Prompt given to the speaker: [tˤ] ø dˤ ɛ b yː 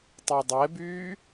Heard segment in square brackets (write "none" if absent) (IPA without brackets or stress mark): tˤ